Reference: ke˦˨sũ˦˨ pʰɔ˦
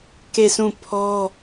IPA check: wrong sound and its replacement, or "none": none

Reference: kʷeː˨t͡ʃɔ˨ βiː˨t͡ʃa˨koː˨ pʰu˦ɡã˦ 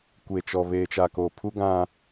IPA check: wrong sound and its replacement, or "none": iː˨ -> eː˨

